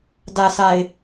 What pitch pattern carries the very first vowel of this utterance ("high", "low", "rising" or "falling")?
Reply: low